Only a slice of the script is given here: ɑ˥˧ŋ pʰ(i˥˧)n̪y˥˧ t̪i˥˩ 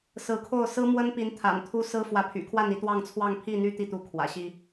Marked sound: correct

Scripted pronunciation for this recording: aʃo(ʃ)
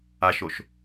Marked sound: correct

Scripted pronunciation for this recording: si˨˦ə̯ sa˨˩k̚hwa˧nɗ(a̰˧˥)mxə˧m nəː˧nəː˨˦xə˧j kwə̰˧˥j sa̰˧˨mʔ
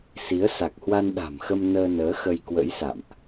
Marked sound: incorrect: a̤˨˩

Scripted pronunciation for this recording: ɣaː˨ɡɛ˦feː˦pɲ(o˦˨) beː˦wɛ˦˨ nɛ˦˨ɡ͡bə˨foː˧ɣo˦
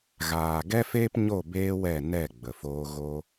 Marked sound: correct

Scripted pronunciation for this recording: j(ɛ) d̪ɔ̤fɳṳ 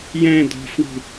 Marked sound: incorrect: ɛ̃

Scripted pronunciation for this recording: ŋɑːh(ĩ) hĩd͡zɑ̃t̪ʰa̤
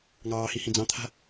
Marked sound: incorrect: i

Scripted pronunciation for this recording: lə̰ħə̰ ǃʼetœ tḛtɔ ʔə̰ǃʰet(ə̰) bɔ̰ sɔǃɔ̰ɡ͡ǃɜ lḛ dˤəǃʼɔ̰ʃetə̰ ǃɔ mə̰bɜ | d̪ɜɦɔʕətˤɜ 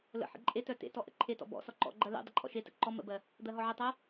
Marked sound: incorrect: ɔ̰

